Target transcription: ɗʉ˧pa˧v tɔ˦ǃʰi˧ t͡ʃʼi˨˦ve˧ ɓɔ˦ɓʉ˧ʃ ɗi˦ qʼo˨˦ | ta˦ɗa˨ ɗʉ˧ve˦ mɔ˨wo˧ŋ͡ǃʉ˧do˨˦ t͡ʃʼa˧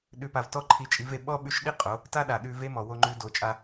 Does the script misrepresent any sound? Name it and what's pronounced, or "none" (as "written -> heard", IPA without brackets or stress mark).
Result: none